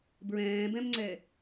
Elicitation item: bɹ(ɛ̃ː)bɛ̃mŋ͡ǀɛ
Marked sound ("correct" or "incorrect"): correct